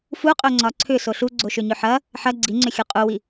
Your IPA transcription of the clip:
f u qʼ ɵ ŋ͡ǀ ɒ ǀʰ ʏ s o ɬ u ɡ͡ǀ o ʃ ʏ ɲ ʏ ħ ɐ | ħ ɐ ɡ͡ǀ i ŋ͡ǀ ʏ xʲ u qʼ u w i

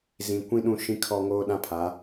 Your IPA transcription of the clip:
z ĩ˨ kʷ ĩ˦ ɗ ũ˦˨ ʃ ĩ˦ kʰ ɔ˦ ŋ oː˦ ɗ ã˦ pʰ a˨˦

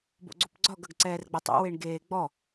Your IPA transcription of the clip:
b o̰ ɡ͡ǀ o p ɡ͡ǀ ɒ ɡ ɐ ɡ ǀ ɛː r ɡ͡b ɛ tˤ ɛ̰ w e ɳ ɡ eː ɡ͡b ɔ

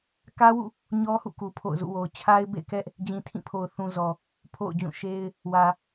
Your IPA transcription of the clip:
k ä˦ w ṵ˦˨ | ɲ ɔ˦ h ṵ˦˨ k u˨ pʰ o̰˦˨ ʊ̯ z ṵ˦˨ w o˨ ʊ̯ t͡ɕʰ a˦ ɪ̯ b ḛ˦˨ ɪ̯ k ɛ˦ ʔ | d͡ʑ ĩ˨ tʰ ĩ˦˨ pʰ o˨ ʊ̯ θ ũ˨ z ɔ˨ | pʰ o̰˦˨ ʊ̯ d͡ʑ ũ˦˨ ʃ e˦ ɪ̯ | w ä˨

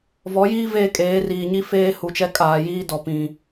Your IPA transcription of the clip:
v ɔ˨˦ j iː˦ v eː˦ kʼ eː˨˦ r iː˨ ɲ i˦ f eː˦ h u˨ t͡ʃ ɛ˦ kʼ aː˨ j iː˦ d ɔ˨ p ĩ˨

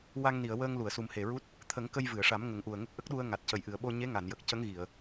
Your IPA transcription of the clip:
w a˧ ŋ n i˨˩˨ ə̯ w əː˧ ŋ l u˨˩˨ ə̯ s u˨˩ m h e˨˩ ɹ u˦˥ t̚ | t̪ʰ ə˨˩˦ ŋ k ə˧ j v ɨ˨˩˨ ə̯ ʂ a˨˩˦ m ŋ ə˨˩˦ ŋ ʔ u˨˩ ə̯ ŋ ə˦˥ k̚ ʔ ə˦˥ k̚ ɗ u˧ ə̯ ŋ a˨˩ t̚ c ə˨˩ j ʔ ɨ˨˩ ə̯ ɓ o˧ ɲ e˧˥ ŋ a˨˩˨ n j ə˨˩ k̚ c ə˧˥ ŋ ɣ i˨˩˨ ə̯

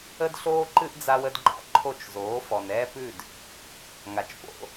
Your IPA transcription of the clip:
ə˥ d ɬ oː˥ ǃ ɨ˥ ʔ d͡z a˧ w ə˩˥ d ɡ͡ǃ a̰˩˥ ǃʰ o˥˩ t͡ʃ z oː˩˥ f ɔ˩ n ɛː˥ p ʉ˥˩ d | ŋ a˩ t͡ʃ p o̰˩˥

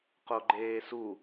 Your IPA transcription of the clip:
q o ɡ͡ǃ eː s u

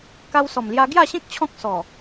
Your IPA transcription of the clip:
k a˧ w s ɔ˨˩ m l j a˧ ɡ j a˥˧ ɕ ẽ˦ k̚ t͡ɕʰ ɔ̃˦ k̚ s ɔ˨˩

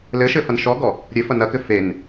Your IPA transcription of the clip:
l ɘ ʃ ɘ f ɐ n ʃ ɔ ɡ ɔ | ɾʲ ɘ f ɐ n ɐ k ɘ f e n

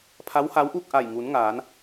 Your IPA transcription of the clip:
pʰ a˧˥ w h a˧˥ w ʔ uː˥˨ k̚ ʔ a˧˩ j ŋ uː˩˧ n ŋ aː˩˧ n

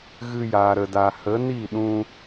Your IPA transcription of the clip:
ɣ ɨ˧ j aː˨ ɾ ə˨ d a˨ h ə˨˦ n i˦˨ ɗ ũ˧

